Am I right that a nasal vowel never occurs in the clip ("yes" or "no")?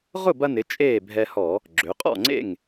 yes